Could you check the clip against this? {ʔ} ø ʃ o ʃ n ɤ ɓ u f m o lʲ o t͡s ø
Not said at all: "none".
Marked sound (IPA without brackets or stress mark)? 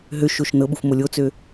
ɦ